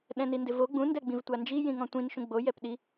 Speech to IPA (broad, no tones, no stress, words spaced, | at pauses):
ɗɛ̃nindɪvo ɡ͡bũ ndɛɡ͡bĩvtʷand͡ʒi jĩŋɔ̃tʷĩn ʃũɡ͡bo jɛpɗi